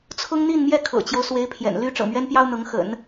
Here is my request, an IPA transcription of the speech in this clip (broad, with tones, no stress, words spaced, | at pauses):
t͡sʰʊ˥ŋn̪i˥˧nmjɛ˥˩ kʰɤ̰˨˩t͡ɕjo˦ʊ̯ swe˧˥ɪ̯pʰjɛ̰˨˩n ly˧˥ ʈ͡ʂɤ̰˨˩mɥɛ˥npjɑ˥ʊ̯ n̪ɤ˧˥ŋxə̰˨˩˦n